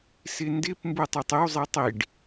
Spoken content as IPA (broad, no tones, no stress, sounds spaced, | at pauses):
s ɪ n d ɪ p m b u tˤ a tˤ ɪ w zˤ i tˤ i ɖ